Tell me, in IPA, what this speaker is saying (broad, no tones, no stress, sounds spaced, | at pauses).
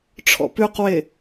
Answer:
ʈ͡ʂʰ ɔ̰ p ʉ q w e